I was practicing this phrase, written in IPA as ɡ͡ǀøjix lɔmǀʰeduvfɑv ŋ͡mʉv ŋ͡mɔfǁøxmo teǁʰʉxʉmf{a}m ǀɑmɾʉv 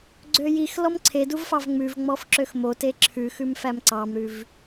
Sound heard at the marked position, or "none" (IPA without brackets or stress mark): æ